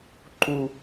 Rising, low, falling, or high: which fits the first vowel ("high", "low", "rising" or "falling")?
low